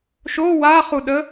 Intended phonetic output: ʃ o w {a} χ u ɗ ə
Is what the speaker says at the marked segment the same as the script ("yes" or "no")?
yes